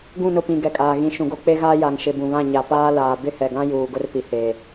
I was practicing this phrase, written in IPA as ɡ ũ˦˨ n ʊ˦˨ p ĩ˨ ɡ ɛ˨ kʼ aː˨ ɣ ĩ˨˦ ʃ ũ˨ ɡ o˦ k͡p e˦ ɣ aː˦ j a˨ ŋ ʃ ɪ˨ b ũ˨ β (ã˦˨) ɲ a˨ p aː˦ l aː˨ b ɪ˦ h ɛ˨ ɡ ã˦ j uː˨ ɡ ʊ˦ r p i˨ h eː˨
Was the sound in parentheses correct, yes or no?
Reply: yes